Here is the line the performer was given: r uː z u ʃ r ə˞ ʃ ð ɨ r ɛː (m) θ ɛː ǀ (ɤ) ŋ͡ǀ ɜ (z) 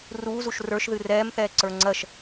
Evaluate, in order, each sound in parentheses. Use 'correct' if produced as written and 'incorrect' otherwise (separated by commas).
correct, incorrect, incorrect